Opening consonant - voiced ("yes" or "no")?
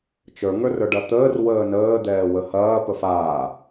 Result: no